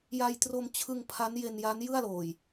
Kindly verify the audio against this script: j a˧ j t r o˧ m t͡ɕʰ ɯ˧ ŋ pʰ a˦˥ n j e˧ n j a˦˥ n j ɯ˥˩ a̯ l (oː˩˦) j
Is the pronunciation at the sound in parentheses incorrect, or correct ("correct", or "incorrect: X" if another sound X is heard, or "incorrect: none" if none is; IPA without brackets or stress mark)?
incorrect: oː˨˩